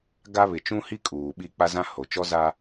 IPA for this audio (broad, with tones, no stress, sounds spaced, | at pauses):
ɡ a˦ β ɪ˨ t͡ʃ ũ˦ h i˦ kʼ uː˨ ɓ i˦˨ k͡p a˦ z ã˦ h o˨ t͡ʃ ɔ˦ z a˦